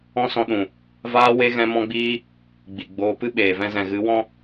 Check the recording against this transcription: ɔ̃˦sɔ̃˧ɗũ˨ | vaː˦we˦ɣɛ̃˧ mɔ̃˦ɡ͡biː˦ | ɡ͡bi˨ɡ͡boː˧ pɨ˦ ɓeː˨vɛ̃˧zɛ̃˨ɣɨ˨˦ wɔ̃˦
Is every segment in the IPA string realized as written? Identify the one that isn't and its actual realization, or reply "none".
none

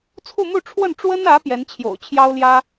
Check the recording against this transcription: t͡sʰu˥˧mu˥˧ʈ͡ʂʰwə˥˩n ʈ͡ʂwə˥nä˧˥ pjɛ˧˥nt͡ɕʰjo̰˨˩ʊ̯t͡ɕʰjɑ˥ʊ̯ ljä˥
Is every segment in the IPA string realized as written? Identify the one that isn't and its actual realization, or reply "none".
none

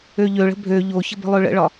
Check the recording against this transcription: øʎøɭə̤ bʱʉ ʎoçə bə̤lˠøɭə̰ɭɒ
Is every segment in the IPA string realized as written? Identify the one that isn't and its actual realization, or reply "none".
ʉ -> ø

